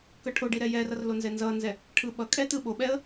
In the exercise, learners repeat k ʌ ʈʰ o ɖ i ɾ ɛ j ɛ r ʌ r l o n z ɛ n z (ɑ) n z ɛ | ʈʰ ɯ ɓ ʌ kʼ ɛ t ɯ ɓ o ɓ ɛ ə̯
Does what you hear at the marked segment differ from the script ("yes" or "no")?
yes